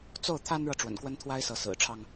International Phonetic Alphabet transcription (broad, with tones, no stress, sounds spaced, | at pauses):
t͡s o˥˩ ʊ̯ t̪ʰ a˥ n ɻ ɤ˨ ʈ͡ʂ w ə̰˨˩ n k w ə˥ n t̪ʰ w a˥ ɪ̯ s ɤ˧˥ s ɹ̩˨˩ ʈ͡ʂʰ ɑ˥ ŋ